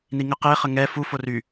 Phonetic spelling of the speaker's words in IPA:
n i ŋ ə q e χ ə ŋ ɛ f u f o r y

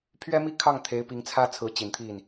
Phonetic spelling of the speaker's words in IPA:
pʰ ɥ ɛ˥ m i˥ kʰ ɑ˥˩ ŋ t̪ʰ e˧˥ ɪ̯ p i˧˥ ŋ t͡sʰ ä˥ t͡sʰ ɹ̩˧˥ t͡ɕ i˨˩ n t̪ʰ i˥˩ n

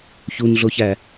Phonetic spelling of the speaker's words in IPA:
ç u n ɮ o ç æ

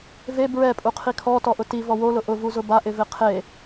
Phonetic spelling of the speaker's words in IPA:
v e b ɹ ɛ pʼ u qʰ i kʰ ɔ t ɔ ʔ ʊ t i v ɔ w o l ʊ ʔ ʊ v u z ʊ b a ʔ ɪ v ɪ qʰ e

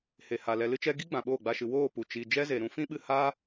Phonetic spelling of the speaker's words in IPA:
h e˨ h a˨ l ɛ˧ l ɨ˦ t͡ʃ ɛ˦ ɡ i˦ ɡ͡b ã˨ ɓ oː˦˨ ɡ͡b a˧ ʃ ɨ˨ w oː˦˨ p u˨ t͡ʃ i˨ d͡ʒ ɛ˦ z e˨ ɾ ũ˧ f ĩ˦ ɓ ɨ˧ h a˦

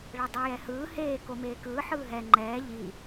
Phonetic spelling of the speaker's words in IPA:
ɭ ɛ dˤ ɛ j ɛ h ɯː h eː k o m eː k ɯː ħ ɯː ɦ ɛ ŋ͡ǃ ɛː ʎ i

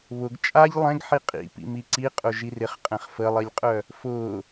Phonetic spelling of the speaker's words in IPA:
β ʊ ɡ t͡ʃʼ a ʎ lˠ ɛ̃ ɡ ħ i qʼ ḭ p ḭ m i ǀ i qʼ ʊ ʒ i r ɪ χ qʼ ɛ̃ χ f ə lˠ i lʲ qʼ œ | f ʊ

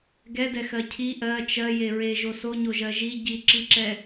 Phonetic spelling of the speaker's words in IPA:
ɡ ɛ d ɛ x ɜ cʰ i ʔ ɜ t͡ʃ ɜ j e ɹ e ʒ o s o ɲ o ʒ ɜ ʒ i ɟ i ǁ i ǁ ɛ

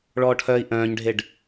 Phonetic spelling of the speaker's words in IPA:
ɭ ɔː ʈʰ œː i̯ ʔ œ̃ː ɲ ɖʱ e ɖ

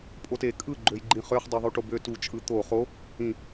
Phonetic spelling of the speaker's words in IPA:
pʼ o t e kʼ ɯ ɡ͡ǃ ø j ɡ͡ǃ ĩ χ ø χ dˤ y ðˤ u ʈ o b ø t u t͡ʃʼ ɯ t̪ o χ o | ĩ

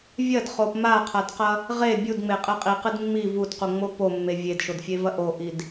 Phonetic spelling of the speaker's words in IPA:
vʲ ɐ d χ o p m a qʰ a d q ɐ | ʁ e bʲ u d ŋ͡m e qʼ e qʼ i q ɨ d mː i v u d q u ŋ͡m o p o mː e vʲ e d ʃ o d fʲ e v ɐ ʔ o ʔ i d

